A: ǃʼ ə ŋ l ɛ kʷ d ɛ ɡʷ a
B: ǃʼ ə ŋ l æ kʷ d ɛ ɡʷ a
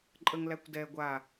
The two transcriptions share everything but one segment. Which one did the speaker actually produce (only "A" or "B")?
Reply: B